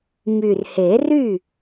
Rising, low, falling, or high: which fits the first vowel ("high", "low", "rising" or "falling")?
low